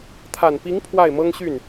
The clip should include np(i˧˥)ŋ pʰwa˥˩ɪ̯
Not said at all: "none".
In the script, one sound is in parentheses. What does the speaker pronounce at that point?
i˧˥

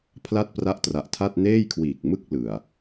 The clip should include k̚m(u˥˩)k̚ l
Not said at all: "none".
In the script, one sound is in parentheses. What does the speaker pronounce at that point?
ɯ˥˩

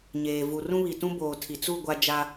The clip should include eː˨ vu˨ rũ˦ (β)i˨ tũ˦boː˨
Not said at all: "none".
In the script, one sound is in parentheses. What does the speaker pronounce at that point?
β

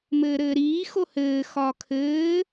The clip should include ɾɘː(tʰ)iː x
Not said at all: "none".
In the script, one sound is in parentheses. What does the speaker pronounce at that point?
ɾ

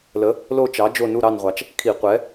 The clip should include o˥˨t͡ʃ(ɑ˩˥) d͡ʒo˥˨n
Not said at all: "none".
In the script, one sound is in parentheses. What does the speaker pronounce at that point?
ɑ˩˥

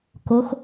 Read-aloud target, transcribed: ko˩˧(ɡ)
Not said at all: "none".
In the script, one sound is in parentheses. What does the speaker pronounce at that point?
x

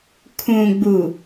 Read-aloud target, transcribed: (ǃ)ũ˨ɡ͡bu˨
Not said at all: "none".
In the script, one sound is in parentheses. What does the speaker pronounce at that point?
kʰ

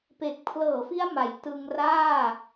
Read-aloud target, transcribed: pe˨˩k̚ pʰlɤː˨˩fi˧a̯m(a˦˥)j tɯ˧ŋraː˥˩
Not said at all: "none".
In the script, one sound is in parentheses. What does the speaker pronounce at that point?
a˩˦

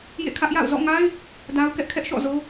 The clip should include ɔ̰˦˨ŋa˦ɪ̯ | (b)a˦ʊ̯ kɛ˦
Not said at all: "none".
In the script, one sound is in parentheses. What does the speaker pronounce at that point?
d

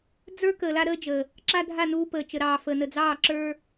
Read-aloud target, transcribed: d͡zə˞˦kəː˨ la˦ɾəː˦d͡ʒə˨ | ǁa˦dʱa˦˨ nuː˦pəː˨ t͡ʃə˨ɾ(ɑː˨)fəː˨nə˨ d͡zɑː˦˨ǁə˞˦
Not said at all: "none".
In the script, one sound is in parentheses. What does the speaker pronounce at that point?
ɑː˨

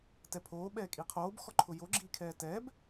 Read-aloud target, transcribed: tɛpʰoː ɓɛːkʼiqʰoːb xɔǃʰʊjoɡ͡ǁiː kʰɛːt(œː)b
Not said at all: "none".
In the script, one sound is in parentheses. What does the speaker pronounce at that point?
ɛː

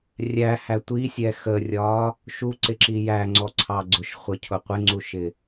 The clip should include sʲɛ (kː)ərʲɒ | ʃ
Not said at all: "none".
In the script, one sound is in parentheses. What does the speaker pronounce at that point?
x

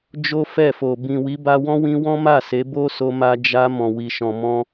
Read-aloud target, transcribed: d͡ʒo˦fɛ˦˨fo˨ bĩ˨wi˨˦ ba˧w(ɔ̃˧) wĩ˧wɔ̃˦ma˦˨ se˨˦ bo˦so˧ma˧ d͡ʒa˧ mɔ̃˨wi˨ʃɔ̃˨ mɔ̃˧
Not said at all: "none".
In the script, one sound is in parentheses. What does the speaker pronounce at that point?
ɔ̃˦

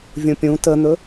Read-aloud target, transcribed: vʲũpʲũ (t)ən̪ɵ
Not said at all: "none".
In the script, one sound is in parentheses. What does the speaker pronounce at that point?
t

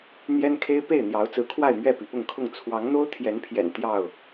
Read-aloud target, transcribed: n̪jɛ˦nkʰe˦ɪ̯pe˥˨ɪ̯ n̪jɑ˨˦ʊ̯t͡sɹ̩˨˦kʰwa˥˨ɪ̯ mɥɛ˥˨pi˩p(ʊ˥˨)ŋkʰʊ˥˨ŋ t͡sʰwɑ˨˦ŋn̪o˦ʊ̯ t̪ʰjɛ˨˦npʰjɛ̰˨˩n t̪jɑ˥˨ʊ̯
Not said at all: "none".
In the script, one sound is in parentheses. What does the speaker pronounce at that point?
ʊ˥˨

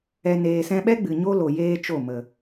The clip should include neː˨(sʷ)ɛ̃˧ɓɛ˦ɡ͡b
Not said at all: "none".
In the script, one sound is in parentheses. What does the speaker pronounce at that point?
s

